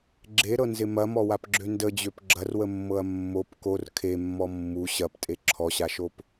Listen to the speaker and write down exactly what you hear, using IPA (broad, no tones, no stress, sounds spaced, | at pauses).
ɡ͡ǁ e ɾ ɤ n z ɪ m ɐ m ɔ w a p ɡ͡ǁ ø n d ə d͡ʑ ø p ɡ͡ǁ ɐ r w ə mː ɤ ɐ̯ mː o p k o r kʰ e mː ɔ mː u ɕ ɐ p tʼ e ǁʰ ɔ ɕ a ʃ o p